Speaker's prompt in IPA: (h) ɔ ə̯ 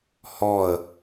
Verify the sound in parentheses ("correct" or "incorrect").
correct